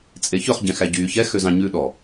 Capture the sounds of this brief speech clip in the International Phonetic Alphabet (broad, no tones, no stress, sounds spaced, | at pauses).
t͡sʼ e ç ɵ χ ɟ ɛ̃ x æ ɟ yː ç ɛ x ø z ɑ̃ ɲ ʉ ɗ ɔ